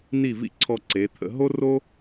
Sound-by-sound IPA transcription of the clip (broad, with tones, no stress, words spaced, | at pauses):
ni˧˩vḭ˧ ǀʰɔ˧ǀe˩˧t̪ʰə̰˧ ɦo˥ro˥